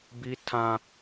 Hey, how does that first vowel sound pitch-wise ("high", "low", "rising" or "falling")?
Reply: high